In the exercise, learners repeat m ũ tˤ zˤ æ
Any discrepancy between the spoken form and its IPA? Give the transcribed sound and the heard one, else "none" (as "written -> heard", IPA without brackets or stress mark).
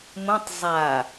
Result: æ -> a